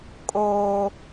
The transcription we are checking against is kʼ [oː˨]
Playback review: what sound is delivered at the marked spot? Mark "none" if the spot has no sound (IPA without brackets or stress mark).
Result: oː˦